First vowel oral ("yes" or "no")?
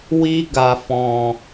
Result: yes